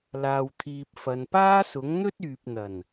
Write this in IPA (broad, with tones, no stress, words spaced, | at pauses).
laː˨wt̪ʰiː˨p̚fɐ˨n paː˥sʊ˨˥ŋ n̪ɵ˥t̚yː˨p̚n̪ɐ˨˩n